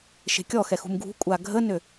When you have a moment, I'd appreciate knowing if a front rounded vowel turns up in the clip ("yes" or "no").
yes